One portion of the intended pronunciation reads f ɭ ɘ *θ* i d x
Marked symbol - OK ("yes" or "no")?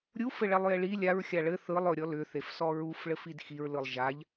no